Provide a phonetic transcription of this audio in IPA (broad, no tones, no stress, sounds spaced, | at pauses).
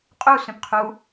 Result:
qʼ u s œ̃ p qʰ u